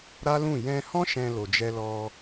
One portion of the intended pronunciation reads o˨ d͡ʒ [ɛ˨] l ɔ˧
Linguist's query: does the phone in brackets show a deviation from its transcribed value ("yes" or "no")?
yes